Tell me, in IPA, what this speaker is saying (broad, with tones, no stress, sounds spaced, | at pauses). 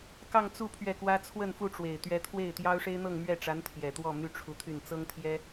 k ɑ˥˧ ŋ t͡s u˥˧ pʰ ɥ ɛ˥˩ k w ä˥ t͡sʰ w ə˥˧ n f u˥˩ ʈ͡ʂ w e˨˩ ɪ̯ t̪ ɥ ɛ˧˥ t̪ʰ w e˥˩ ɪ̯ t̪ j ɑ˥ ʊ̯ ʂ e˥ ɪ̯ n̪ ɤ˥˧ ŋ m ɥ ɛ˥˩ ʈ͡ʂ a˧˥ n t̪ʰ j ɛ˨˩ t̪ w ɔ˥˩ m y˥ ʈ͡ʂʰ u˧˥ t̪ʰ y˥˩ n t͡s ɤ˥ ŋ t̪ʰ j ɛ˥